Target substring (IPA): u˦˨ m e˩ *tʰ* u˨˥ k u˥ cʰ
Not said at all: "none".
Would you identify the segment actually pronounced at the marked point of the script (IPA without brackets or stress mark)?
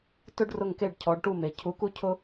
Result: cʰ